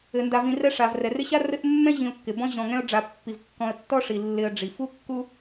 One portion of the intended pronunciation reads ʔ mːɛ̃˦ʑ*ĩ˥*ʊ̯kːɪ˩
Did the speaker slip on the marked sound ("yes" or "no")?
yes